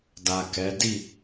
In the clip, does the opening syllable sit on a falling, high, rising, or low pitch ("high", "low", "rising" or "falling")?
low